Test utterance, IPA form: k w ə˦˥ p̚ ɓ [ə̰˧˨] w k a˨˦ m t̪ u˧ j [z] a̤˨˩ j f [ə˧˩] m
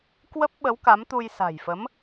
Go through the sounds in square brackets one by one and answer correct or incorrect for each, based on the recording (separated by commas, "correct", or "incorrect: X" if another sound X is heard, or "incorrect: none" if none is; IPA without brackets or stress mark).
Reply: incorrect: ə˨˦, incorrect: s, incorrect: ə˨˦